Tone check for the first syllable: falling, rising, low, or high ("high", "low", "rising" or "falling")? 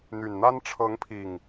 low